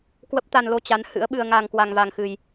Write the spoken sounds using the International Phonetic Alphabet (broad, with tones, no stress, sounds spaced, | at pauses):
k w ə˦˥ p̚ t̪ a˧ n l o˧ t͡ɕ a˨˦ n h ɨ̰˧˥ ə̯ ɓ ɨ˧ ə̯ ŋ a˧ ŋ k w a˧ ŋ v a˧ ŋ x ɨ˧ j